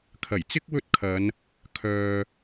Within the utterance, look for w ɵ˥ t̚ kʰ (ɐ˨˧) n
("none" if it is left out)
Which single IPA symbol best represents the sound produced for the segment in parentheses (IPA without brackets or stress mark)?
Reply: ɐ˨˧